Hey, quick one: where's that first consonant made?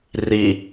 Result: tongue tip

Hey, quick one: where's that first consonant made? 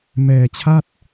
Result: lips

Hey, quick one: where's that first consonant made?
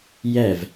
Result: palate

